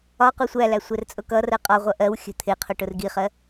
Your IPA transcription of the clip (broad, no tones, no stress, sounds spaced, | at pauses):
ɒ q u sʷ æ l æ sʷ ɛ r t͡sʼ ʊ k ʌ r ɜ qʼ ɒ ʁʷ ʌ ʔ ɜ w xʲ ə̤ t̪ʰ ɪ qʰ ʊ ʈ ʊ r ɡ i χ ɜ